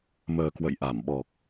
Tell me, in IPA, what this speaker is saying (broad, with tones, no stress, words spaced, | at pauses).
məː˨˩ kwə̰˧˨jʔa˧˩m ɓɔ˨˩k̚